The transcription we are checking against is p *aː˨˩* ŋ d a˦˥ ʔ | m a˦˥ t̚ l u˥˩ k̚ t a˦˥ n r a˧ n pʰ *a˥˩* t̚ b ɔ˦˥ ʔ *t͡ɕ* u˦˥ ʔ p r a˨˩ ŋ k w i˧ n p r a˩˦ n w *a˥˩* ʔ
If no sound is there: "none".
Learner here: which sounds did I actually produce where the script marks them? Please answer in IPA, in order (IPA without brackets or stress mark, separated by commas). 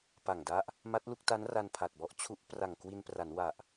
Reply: a˨˩, a˨˩, t͡ɕʰ, a˨˩